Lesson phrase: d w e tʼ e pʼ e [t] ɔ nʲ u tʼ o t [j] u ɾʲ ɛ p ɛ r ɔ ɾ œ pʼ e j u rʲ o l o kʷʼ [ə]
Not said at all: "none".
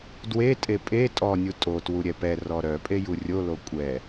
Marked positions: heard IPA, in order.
tʼ, w, ɛ

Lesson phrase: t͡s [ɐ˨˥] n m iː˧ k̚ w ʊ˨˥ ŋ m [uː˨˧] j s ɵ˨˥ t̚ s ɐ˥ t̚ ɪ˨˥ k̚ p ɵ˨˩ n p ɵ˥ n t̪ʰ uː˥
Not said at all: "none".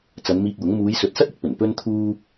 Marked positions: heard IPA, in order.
ɐ˨˧, uː˨˧

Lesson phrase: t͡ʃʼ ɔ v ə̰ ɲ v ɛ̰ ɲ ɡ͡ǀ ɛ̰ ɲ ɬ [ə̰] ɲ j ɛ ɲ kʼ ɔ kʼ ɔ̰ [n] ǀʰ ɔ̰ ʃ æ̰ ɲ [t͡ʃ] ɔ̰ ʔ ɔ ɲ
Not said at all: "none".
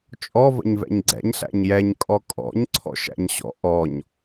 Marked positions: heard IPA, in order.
æ̰, ɲ, ɕ

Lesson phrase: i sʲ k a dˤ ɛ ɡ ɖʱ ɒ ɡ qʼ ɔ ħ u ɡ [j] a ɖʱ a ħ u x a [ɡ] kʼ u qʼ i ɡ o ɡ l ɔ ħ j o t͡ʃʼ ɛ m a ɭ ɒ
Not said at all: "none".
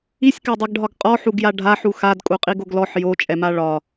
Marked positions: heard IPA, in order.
j, d

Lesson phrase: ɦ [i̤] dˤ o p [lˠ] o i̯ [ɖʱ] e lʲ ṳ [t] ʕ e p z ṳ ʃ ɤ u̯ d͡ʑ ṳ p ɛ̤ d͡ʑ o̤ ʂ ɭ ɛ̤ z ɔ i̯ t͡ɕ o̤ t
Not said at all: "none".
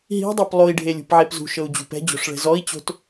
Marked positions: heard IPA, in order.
i̤, lˠ, ɖʱ, p

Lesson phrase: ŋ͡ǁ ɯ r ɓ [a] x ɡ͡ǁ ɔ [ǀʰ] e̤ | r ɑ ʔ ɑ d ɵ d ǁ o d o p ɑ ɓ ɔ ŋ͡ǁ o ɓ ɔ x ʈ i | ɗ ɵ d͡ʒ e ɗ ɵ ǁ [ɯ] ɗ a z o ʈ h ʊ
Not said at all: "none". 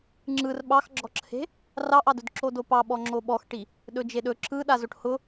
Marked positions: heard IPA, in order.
ɑ, ǁʰ, ɯ

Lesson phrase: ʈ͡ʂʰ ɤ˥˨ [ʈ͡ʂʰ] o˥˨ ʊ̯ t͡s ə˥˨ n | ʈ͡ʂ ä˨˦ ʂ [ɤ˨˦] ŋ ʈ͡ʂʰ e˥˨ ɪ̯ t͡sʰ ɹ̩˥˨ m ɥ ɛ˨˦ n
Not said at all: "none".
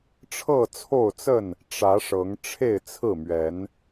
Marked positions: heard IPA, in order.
t͡sʰ, ɤ˨˦

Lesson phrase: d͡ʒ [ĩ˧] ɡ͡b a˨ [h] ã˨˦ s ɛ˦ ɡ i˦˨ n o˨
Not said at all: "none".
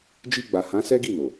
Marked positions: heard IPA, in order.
i˧, h

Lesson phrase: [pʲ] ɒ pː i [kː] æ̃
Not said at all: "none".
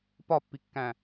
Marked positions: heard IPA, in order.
p, kː

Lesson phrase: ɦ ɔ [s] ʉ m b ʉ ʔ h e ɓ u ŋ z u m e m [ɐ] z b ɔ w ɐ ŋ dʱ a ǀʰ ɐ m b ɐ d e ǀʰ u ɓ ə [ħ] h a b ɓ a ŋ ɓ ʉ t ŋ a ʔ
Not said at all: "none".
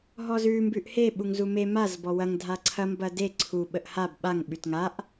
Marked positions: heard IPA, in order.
z, a, ʔ

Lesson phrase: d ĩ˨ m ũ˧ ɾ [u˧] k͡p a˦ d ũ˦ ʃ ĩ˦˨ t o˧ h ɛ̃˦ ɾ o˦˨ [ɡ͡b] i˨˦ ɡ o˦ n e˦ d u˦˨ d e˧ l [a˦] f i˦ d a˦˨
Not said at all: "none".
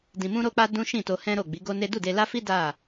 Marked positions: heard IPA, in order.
o˧, ɡ͡b, a˦

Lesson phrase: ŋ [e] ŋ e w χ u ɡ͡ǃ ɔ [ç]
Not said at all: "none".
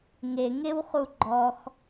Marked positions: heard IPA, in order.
e, x

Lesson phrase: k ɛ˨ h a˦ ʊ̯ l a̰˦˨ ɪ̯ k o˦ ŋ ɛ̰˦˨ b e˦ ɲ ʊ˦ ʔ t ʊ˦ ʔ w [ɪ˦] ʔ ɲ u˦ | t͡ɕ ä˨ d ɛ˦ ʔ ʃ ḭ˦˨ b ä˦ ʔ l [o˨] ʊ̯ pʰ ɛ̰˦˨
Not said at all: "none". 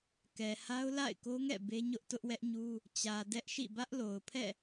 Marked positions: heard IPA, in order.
ɛ˦, o˨

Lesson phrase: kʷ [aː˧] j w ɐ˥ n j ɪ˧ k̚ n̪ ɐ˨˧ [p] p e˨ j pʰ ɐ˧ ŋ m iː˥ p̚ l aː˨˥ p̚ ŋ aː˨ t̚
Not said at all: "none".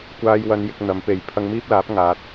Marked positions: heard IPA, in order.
aː˥, m

